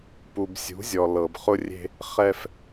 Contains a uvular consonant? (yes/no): yes